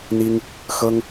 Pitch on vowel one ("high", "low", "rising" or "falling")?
high